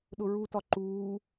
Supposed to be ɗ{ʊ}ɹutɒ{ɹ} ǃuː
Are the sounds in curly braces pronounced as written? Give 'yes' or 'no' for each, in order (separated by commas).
yes, no